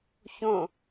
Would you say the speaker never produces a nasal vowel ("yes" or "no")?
no